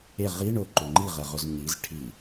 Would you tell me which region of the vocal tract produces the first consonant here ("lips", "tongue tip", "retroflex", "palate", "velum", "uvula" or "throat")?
uvula